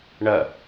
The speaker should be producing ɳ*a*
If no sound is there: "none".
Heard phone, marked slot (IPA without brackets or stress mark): ɐ